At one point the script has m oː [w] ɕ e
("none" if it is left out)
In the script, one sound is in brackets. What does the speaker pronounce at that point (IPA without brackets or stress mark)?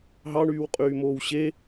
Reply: w